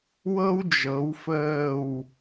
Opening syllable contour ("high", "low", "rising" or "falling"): high